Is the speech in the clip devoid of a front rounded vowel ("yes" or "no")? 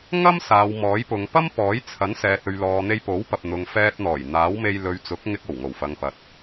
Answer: yes